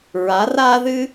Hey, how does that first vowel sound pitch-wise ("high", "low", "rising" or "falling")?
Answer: rising